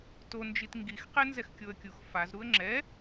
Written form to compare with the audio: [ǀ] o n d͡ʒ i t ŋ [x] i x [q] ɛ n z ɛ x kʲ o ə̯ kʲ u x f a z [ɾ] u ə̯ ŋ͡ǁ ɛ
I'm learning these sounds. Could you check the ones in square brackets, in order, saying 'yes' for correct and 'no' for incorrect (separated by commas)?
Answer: no, no, yes, yes